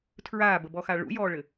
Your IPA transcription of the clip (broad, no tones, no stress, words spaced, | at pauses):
tʰɹaːbəbɔxa ɭṵjɔːɭɘ